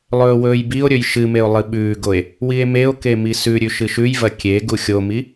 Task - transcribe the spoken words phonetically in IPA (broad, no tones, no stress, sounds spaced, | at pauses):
lˠ ɵː w ɵː j b i o̯ ɾʲ ɵ j ʃ ɨ m e o̯ lˠ ɨ ɓ ʉː ɡ o e̯ | w i e̯ m e o̯ k e m i s ʉ ɾʲ ʉ ʃ ɨ ʃ ʉ j v ɐ kʲ e ɡ u xʲ o m i